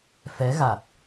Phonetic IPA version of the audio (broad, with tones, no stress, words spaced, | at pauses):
fɛ˨˦ɣa˨˩t̚